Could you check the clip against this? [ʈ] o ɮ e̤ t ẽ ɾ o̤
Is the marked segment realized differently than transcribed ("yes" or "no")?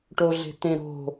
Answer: no